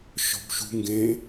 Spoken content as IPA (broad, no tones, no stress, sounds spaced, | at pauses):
ʃ ɔ̤ b ʃ ṳ ŋ ɡ ẽ